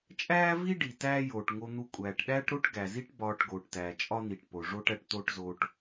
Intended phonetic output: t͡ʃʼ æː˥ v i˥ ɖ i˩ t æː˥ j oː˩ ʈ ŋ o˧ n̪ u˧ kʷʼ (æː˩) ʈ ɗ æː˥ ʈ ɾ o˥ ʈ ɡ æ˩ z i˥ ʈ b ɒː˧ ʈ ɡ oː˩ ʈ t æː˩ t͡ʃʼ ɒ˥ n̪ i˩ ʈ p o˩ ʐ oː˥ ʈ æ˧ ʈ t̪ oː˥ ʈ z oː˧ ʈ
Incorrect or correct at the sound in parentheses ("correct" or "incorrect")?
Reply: correct